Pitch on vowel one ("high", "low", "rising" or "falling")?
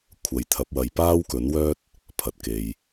low